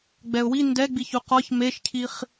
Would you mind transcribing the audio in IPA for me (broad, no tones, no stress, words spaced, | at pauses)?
ɡ͡bɛʊ̯wi ndɛɡ͡biçu qɒç meʃcʰiχ